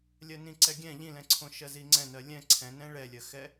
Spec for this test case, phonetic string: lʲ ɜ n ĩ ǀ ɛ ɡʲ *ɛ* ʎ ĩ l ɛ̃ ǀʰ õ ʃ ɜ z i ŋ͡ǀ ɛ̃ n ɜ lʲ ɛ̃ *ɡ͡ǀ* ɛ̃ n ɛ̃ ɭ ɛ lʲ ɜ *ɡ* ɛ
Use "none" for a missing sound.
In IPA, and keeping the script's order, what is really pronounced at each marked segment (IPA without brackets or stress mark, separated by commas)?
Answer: ɛ̃, ǀʰ, x